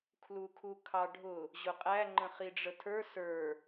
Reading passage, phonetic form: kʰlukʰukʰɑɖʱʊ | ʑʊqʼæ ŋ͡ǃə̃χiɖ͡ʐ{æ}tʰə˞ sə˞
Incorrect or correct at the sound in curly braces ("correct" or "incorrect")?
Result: incorrect